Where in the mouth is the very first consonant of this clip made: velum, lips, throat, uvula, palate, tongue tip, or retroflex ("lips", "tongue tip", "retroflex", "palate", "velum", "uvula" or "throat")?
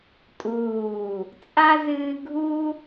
tongue tip